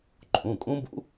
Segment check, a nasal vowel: present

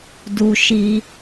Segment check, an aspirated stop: absent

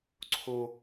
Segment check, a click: present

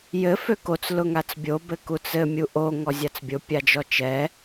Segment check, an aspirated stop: absent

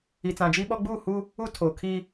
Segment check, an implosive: present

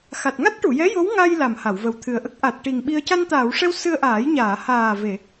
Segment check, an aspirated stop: present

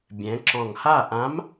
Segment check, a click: present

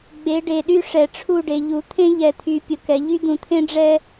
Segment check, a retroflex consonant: present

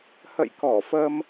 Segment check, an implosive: absent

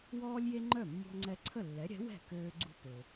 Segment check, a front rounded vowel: present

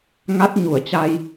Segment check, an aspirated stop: absent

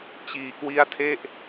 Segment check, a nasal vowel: absent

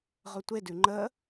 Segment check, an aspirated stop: absent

